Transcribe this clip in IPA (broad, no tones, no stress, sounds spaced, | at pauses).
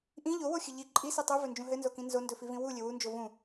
ʔ ĩ ʎ o w o xʲ ɘ ʎ i ǃʼ i s i tˤ u v ɵ n d͡ʒ ũ ɦ ɘ n z o k ĩ n z o n d ɵ f i v ĩ w u lʲ ɘ w u n d͡ʒ o v ũ